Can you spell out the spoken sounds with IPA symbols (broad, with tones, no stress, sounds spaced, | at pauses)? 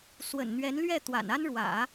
s w ə̰˨˩ n n̪ ɥ ɛ˧˥ n l ɥ ɛ˥˩ t̪ w a̰˨˩ n a˥ n ɻ w ä̰˨˩˦